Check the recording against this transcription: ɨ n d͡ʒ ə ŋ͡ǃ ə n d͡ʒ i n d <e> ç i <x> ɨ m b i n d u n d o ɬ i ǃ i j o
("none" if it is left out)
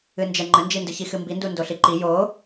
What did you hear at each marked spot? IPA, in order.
ɨ, x

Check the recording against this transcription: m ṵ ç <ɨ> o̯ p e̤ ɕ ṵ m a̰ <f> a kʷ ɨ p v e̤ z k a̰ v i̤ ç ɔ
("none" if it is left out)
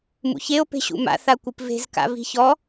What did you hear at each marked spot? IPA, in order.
e, θ

